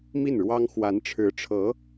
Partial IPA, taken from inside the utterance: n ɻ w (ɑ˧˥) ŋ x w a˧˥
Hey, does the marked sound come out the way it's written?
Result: no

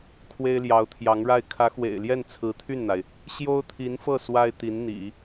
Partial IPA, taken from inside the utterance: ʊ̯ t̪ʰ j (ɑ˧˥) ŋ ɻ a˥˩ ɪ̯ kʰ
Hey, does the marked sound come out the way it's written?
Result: yes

